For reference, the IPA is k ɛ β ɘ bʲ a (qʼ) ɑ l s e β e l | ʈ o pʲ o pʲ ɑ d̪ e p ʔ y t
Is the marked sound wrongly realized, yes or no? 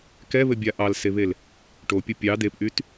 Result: yes